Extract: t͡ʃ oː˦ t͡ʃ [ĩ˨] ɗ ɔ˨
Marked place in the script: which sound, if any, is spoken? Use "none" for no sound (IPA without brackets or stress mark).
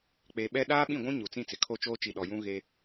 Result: i˨